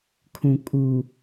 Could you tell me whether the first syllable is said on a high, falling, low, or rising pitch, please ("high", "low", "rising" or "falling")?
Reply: low